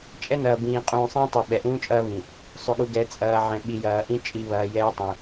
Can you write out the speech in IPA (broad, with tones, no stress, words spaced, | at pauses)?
t͡ʃʼɛ˦nɐː˨bĩː˨ qʼũː˨ sˤĩː˦tˤu˨ ɓɛ˨ʔũː˦t͡ʃʼɐː˦βĩ˨ | sˤʏ˨ɠu˨ ɡɛ˨t͡sʼɐː˨ ʕɛ̃˨ ɓi˨jɐː˨ʔĩ˦ t͡ʃʼi˨βɐː˨ jɛː˦tˤũ˨